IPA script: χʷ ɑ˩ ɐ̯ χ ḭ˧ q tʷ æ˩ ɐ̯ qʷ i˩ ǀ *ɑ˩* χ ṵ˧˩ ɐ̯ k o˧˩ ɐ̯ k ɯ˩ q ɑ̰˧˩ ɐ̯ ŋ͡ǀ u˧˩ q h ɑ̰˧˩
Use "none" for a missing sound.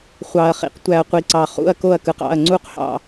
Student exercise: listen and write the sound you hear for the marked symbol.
ɑ˩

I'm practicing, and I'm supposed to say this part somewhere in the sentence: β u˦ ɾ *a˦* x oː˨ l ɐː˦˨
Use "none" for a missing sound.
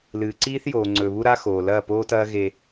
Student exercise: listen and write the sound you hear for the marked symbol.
a˦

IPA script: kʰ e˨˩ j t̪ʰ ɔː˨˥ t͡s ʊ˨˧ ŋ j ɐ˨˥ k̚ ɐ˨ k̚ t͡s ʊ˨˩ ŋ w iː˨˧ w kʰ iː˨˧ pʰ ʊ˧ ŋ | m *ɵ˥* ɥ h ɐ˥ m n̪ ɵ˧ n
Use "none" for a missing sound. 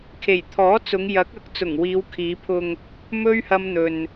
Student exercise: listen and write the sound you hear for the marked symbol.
ɵ˥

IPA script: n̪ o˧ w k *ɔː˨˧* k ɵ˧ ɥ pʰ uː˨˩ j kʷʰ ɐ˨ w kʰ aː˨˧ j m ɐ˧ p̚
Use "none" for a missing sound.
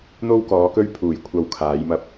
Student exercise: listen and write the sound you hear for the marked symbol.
ɔː˨˧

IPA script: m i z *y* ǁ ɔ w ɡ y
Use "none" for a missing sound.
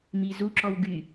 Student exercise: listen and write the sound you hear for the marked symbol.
u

